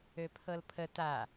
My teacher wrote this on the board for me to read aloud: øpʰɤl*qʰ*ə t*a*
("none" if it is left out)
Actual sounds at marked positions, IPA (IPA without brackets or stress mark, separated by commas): pʰ, a